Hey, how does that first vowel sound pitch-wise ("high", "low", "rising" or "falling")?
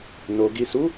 low